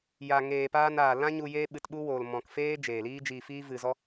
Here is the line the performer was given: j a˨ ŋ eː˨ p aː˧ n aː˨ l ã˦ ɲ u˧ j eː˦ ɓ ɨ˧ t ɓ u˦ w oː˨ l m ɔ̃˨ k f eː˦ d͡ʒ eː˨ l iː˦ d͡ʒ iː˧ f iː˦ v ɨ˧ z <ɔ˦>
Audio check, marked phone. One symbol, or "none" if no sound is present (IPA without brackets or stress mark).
ɔ˦